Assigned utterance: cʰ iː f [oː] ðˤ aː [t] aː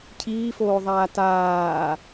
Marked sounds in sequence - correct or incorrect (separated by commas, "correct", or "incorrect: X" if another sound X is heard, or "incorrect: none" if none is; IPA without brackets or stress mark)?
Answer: correct, correct